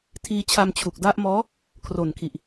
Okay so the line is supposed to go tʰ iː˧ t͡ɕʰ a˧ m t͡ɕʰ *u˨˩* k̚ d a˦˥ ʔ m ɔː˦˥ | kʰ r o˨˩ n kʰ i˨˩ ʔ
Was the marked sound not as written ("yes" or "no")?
no